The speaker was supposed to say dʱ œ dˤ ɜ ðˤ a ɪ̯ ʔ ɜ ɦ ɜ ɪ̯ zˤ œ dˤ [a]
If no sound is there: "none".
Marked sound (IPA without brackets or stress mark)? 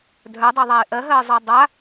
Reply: a